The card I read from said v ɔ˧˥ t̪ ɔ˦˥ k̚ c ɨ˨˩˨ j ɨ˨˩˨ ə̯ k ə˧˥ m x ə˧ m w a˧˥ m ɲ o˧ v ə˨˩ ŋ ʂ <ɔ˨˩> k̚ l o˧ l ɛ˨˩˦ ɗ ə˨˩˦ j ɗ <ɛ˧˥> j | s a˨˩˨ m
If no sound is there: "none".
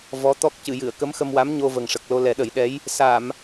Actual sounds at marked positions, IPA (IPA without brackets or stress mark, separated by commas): ə˨˩, ɛ˧˥